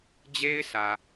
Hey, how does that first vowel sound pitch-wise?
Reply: high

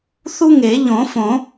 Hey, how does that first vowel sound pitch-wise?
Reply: high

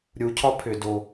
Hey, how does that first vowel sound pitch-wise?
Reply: low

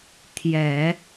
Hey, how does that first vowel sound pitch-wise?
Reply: low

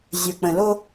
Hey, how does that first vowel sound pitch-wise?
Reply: low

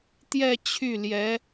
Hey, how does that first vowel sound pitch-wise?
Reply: falling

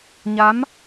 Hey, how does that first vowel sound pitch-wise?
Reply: rising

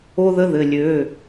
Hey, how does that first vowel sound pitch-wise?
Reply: high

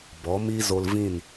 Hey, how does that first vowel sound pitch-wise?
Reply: rising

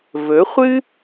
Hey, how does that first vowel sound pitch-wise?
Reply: rising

